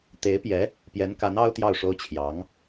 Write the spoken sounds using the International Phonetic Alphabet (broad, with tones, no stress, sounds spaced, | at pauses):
t̪ e˧˥ ɪ̯ p j ɛ˧˥ | p j ɛ˧˥ n k a˧˥ n ɑ˥ ʊ̯ t̪ j ɑ˥˩ ʊ̯ ʂ o˥ ʊ̯ t͡ɕʰ j ɑ˧˥ ŋ